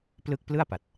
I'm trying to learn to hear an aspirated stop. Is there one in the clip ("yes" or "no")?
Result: no